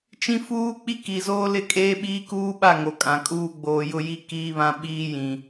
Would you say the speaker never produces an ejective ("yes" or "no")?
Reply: no